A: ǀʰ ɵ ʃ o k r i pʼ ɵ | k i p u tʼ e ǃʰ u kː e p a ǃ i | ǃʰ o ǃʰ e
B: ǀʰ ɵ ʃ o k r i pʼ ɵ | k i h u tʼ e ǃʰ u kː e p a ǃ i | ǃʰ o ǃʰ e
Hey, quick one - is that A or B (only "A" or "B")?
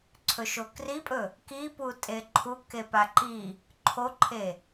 A